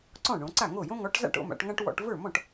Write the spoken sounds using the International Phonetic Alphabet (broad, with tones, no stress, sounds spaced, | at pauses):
ǀ ɔ̃˥˩ ɳ õ˩˧ ǀ a˥˩ ŋ o˥˩ j õ˥ ŋ ɔ˨˥ ʈ z a̰˥˧ ʈ o̰˥˧ m a̰˩˧ ʈ ŋ ã˥ ʈ w ɔ̰˧˥˧ ʈ v ə˞˥˩ m ɔ̃˥˩ ʈ